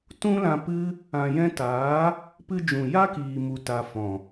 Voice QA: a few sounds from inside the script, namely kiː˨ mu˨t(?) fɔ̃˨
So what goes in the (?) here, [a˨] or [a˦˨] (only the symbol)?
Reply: a˨